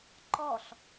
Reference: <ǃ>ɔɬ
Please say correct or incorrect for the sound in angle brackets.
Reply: correct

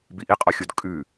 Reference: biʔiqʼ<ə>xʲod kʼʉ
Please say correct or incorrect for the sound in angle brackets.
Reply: incorrect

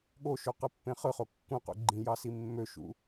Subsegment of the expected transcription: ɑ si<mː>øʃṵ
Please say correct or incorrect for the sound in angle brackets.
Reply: correct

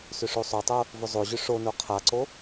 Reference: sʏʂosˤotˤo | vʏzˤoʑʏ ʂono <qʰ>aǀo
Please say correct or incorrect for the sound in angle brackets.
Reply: correct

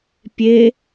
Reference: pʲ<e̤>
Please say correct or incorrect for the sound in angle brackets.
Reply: incorrect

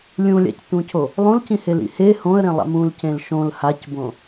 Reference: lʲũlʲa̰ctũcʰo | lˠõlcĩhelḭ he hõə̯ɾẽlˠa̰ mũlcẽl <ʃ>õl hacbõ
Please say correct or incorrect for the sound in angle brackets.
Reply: correct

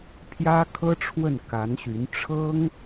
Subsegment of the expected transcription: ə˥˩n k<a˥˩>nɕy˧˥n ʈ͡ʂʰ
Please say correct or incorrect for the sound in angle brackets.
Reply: incorrect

